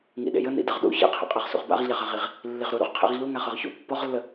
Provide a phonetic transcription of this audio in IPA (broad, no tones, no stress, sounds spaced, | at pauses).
ŋ ḭ ɗ ḛ j ə n ḭ d ə ʁ ɗ ṵ ç ḛ qʰ ḛ qʼ ɤ ʁ s ṵ ʁ b a̰ ʁ ʎ a ʁ a ʁ i ʁ | lː i ʁ ɾ u ɾ ṵ ʁ qʰ ḛ ʁ ʎ u ŋ a χ ɤ ʁ ç ṵ pː ɔ ʁ lː ə